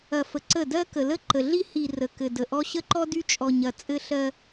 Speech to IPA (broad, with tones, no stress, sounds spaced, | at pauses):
ɐ˨ f ə˨ ǀ ə˦˨ d ɜ˦ k ə˨ l ə˦ ǃ ə˨ ɮ i˦ h i˨ r ə˨ k ɘ˨ d ə˨ ʔ ɔ˦ ɕ ə˦ ǃ ɔ˦ d y˦ t͡ʃʼ ɔ˨ ɲ ɐ˨ t͡sʼ ɘ˦ ɬ ɜ˦